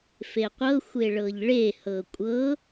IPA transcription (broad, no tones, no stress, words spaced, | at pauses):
feqʷɤ xʷeɭɤʎɭe hɤkʷʼɤ